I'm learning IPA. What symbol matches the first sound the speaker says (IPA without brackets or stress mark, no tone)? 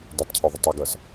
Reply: d